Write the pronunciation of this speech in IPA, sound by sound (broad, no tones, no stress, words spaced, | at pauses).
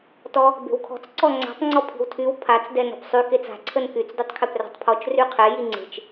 tɔ | be̤wkʰɔ̤t͡s ǀɔŋ͡ǀa̤tˤ ŋ͡ǀɔpʰi̤wtʰyw pʰat͡s dɛnɔ̤psˤy ket͡sa̤ ǀʰənkyt͡s dytˤkʰepra̤tˤpʰɔt͡ʃ ryqʰɛ jiŋ͡ǀe̤t͡ʃ